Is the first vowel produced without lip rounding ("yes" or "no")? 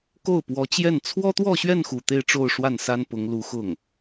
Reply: no